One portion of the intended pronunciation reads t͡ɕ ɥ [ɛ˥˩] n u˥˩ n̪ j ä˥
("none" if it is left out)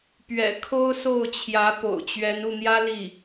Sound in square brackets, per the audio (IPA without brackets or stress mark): ɛ˧˥